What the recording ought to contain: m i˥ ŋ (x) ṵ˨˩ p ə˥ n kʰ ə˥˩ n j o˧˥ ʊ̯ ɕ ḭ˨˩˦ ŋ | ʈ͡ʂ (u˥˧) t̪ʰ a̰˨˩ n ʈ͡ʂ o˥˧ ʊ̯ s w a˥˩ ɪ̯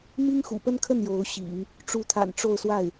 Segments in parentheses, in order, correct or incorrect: correct, incorrect

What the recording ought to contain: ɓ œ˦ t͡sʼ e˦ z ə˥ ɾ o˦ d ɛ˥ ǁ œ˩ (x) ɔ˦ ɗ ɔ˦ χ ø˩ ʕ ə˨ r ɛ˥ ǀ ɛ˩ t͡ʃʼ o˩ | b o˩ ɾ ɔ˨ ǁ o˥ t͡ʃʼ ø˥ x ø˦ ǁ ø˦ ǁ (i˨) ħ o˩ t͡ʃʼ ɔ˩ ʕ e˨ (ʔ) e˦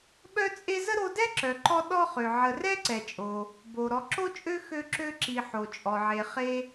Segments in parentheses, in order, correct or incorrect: incorrect, correct, incorrect

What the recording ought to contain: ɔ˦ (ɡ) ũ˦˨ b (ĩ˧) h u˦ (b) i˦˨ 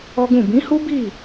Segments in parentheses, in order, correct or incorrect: correct, incorrect, correct

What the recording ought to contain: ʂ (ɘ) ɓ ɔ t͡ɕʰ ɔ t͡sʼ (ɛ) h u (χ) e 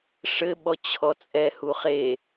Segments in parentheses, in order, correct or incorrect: correct, correct, correct

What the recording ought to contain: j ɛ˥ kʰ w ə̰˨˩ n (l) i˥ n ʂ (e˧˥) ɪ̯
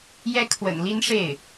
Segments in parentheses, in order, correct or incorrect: correct, incorrect

